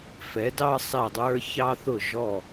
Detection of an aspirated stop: absent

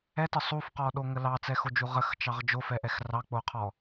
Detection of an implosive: present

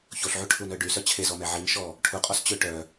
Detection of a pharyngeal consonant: present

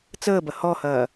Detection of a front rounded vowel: absent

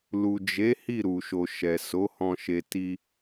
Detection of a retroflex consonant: absent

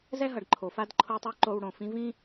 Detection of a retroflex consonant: present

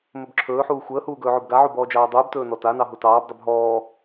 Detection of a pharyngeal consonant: present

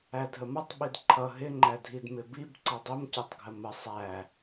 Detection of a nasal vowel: absent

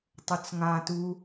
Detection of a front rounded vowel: absent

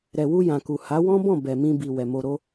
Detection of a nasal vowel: present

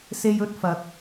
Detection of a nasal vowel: absent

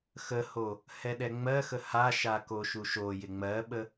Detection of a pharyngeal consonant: absent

